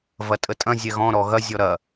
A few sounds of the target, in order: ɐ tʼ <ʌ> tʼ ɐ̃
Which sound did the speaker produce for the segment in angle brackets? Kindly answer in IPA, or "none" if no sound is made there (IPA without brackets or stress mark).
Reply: ə